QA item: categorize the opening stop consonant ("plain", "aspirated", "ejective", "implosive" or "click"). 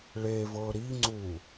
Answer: click